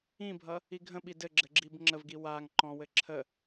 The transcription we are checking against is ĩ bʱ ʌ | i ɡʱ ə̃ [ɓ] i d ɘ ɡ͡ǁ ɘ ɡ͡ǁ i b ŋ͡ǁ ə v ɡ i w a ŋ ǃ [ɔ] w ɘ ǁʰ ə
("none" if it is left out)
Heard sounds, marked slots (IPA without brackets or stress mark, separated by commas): ɓ, ɔ̃